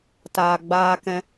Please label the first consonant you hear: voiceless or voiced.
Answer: voiceless